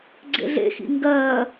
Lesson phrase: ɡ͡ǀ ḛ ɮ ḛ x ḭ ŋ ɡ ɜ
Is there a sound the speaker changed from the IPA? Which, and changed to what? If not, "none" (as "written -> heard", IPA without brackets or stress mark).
none